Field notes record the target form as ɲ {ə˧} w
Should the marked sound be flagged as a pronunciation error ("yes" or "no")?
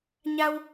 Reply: yes